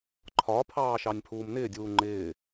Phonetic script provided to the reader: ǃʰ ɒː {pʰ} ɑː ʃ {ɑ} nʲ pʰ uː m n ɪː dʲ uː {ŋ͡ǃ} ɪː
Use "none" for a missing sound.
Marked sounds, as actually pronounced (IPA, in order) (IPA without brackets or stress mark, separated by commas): pʰ, ɑ, ŋ͡ǃ